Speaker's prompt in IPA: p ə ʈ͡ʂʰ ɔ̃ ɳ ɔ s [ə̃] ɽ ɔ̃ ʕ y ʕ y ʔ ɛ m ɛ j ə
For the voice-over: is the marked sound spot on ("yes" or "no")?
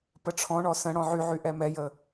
yes